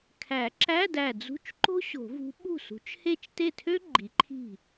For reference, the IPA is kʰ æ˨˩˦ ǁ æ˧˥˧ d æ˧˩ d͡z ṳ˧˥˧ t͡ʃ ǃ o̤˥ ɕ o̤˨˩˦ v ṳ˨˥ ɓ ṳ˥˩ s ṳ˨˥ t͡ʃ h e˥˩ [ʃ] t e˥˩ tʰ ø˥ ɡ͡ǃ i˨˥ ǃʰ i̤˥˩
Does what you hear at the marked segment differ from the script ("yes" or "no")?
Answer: yes